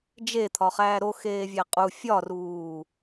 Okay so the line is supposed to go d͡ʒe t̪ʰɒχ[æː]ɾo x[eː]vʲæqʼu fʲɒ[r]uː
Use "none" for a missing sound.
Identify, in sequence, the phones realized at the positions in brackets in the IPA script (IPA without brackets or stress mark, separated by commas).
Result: æː, eː, r